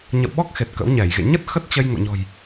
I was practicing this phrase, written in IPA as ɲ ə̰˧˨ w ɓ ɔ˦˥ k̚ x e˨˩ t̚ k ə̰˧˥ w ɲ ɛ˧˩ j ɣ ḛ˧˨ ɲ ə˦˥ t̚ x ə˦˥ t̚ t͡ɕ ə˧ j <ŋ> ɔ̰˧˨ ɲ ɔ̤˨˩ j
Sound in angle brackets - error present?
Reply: no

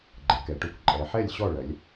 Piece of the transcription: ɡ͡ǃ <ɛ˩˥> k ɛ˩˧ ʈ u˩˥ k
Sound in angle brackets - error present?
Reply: yes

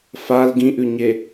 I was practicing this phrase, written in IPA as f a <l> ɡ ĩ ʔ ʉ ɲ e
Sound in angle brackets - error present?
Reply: no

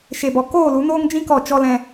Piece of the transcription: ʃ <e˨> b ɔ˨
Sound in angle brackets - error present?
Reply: no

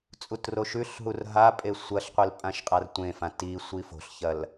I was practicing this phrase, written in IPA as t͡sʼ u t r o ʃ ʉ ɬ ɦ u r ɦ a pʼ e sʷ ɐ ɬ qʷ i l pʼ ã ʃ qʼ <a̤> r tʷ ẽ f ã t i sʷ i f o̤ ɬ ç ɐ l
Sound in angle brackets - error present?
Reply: yes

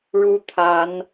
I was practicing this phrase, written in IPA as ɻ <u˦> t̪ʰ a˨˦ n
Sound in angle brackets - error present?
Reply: no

